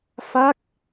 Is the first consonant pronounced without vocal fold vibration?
yes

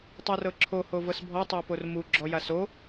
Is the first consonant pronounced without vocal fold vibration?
yes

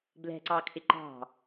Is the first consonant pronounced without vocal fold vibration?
no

